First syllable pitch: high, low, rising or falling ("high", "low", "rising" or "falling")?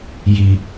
low